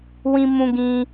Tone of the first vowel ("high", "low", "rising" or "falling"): high